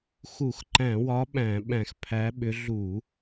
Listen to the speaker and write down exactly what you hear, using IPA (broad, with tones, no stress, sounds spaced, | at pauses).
x u˧˩˧ x ǃ æ̃˧˩˧ w ɒ˨˦ ɓ æ̃˧˩˧ ɓ æ̃˧˩˧ x pʰ æ˨˦ ɓ ʏ˨˦ ɮ u˧˩˧